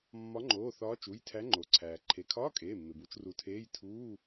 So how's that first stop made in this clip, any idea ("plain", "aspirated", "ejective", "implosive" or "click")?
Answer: click